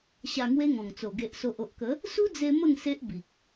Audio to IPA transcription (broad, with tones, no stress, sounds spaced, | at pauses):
ɕ a˧ ŋ w e˦ ŋ ɔ̃˨˩ ŋ t͡s o˨˩ ɡ e˨ ʔ s o˨ ʔ o˨ ʔ k ə˨˦ | s u˦ d͡z e˧ m ə˥˧ ŋ s e˦ ʔ b i˨ k̚